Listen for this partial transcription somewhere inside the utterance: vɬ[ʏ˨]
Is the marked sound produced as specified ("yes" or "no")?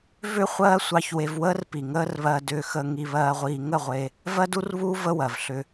no